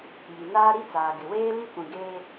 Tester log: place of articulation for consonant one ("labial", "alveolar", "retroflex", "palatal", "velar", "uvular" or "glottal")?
palatal